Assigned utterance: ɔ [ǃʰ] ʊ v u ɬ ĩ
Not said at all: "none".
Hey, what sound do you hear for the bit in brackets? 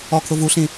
kʰ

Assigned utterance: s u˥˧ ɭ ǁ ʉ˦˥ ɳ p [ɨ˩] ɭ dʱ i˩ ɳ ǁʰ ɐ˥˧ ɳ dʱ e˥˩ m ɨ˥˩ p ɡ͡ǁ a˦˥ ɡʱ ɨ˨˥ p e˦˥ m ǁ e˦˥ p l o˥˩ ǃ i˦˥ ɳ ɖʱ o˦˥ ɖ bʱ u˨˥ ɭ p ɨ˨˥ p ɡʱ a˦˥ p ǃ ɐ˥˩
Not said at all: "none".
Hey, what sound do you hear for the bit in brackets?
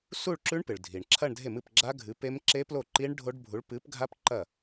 ɨ˩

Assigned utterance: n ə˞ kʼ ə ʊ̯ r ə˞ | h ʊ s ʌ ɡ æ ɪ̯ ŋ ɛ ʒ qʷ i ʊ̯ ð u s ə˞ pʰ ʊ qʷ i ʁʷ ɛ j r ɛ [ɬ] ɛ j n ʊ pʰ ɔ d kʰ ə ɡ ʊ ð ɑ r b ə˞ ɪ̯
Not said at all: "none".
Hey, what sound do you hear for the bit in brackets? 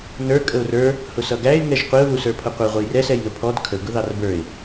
s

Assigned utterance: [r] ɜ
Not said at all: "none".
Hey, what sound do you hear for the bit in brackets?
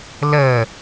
l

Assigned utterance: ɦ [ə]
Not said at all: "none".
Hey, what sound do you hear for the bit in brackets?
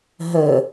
ə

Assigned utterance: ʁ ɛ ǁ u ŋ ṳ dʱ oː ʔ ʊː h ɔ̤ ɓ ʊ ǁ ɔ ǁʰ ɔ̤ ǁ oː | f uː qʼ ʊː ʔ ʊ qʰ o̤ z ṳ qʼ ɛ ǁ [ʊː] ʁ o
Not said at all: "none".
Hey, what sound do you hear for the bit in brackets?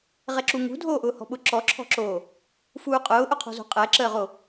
əː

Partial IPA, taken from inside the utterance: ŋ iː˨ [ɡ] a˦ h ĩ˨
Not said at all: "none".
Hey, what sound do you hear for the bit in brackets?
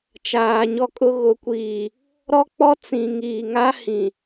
ŋ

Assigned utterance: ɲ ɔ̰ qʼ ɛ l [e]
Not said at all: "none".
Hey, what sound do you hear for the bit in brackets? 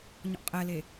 e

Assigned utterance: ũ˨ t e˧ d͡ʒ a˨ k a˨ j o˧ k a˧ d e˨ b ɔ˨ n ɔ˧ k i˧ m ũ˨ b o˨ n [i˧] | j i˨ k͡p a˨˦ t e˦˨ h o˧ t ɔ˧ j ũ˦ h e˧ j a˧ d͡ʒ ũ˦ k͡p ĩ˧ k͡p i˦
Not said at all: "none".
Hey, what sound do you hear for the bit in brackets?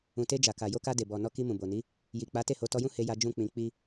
i˨˦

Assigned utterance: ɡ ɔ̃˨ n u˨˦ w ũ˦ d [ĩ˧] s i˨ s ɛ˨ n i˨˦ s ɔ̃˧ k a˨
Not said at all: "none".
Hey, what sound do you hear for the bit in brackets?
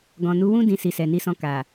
ĩ˧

